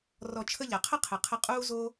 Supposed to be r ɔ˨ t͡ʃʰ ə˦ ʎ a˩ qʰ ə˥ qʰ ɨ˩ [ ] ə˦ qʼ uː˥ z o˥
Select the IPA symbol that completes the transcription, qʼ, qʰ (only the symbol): qʰ